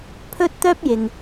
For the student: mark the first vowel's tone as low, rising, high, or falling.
high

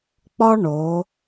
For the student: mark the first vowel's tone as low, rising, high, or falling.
high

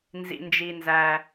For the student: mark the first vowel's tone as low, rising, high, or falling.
low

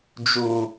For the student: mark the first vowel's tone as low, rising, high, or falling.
low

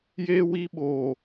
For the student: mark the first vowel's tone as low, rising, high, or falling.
high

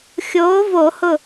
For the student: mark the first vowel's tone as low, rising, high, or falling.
rising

